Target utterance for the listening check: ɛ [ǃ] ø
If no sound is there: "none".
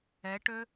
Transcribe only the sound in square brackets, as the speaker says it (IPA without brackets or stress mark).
ʈ